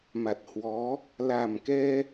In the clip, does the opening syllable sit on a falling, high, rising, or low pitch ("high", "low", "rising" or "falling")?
low